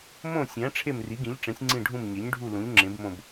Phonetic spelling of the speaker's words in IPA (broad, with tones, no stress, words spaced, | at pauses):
mõ˦˨ sʲæ̃˩˥ ʈ͡ʂʰe˦˨mri˩˥ɡĩ˩˥ʎʈ͡ʂẽ˩˥sʲ ŋ͡ǀĩ˦˨ɖʱũ˦˨m ɲe˩˥ɲɖʱu˦˨ lũ˩˥ʎŋ͡ǁẽ˩˥bmõ˦˨b